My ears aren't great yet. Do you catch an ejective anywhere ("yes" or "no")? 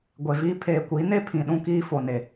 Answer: no